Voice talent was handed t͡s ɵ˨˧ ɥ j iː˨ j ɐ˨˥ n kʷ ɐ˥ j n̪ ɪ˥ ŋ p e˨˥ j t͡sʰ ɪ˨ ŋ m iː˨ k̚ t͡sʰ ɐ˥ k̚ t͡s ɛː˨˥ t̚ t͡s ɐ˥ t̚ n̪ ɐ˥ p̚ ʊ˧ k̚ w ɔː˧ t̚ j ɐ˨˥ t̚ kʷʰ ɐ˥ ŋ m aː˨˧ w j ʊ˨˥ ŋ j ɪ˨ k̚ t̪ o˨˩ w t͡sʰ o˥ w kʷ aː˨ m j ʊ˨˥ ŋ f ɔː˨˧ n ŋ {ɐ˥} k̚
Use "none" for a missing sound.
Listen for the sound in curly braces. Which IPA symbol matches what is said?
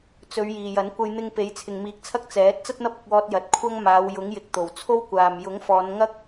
ɐ˥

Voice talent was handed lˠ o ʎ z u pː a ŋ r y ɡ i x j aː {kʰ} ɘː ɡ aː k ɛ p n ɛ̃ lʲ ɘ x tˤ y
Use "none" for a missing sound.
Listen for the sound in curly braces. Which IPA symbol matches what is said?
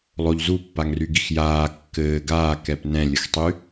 kː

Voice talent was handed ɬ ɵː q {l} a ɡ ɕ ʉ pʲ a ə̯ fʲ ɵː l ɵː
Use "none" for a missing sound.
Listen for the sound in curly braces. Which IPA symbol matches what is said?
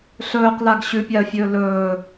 l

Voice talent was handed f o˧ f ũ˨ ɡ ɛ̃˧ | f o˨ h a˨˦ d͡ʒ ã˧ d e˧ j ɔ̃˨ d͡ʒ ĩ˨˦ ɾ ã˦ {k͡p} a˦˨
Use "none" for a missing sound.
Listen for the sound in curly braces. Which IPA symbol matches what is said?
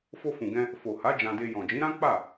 k͡p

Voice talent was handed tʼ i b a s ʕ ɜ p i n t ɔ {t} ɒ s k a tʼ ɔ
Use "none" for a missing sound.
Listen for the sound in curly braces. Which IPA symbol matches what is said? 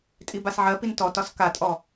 t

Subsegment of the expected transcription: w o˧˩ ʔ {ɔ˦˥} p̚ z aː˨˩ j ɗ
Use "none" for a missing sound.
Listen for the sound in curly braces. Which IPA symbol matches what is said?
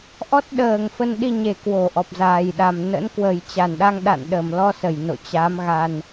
ɔ˨˩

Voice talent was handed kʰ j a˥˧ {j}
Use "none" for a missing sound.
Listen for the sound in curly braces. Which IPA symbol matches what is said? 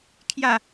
none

